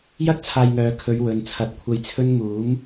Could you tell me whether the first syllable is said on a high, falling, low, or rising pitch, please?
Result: high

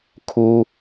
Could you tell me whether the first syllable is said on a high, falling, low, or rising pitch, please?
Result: high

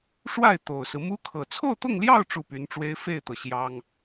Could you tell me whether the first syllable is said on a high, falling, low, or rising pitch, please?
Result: falling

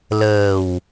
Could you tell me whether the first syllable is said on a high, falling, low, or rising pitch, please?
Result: low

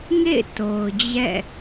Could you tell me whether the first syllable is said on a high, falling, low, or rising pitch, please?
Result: falling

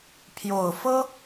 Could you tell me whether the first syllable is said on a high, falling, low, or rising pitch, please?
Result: low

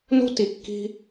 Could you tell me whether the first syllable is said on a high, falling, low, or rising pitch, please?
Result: high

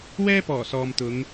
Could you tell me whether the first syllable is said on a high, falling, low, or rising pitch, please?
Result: high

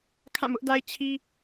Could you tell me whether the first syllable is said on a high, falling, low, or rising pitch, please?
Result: falling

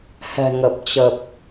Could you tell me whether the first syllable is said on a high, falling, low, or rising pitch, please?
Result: low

